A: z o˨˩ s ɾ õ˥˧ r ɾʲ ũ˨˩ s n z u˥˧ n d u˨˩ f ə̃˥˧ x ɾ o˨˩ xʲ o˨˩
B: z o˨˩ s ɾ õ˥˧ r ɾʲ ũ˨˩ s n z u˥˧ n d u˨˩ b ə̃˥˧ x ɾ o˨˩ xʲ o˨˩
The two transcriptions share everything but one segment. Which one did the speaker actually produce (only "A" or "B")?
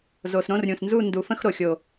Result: A